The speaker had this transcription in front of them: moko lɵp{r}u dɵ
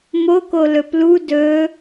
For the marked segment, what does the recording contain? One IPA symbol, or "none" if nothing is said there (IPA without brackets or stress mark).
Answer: l